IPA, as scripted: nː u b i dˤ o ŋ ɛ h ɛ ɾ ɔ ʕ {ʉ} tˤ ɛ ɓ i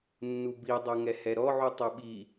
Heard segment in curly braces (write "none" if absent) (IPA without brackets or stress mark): u